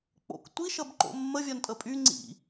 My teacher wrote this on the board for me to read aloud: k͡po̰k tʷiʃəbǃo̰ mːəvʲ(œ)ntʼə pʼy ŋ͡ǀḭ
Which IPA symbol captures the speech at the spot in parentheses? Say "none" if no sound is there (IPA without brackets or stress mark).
œ